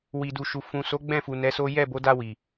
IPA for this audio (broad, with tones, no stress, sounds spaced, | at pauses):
w i˨ d u˨ ʃ u˨ f ũ˨ s o˨˦ ɡ͡b ɛ̃˦˨ f u˨ n ɛ˨˦ s o˦ j ɛ˦˨ b o˨˦ d a˧ w i˨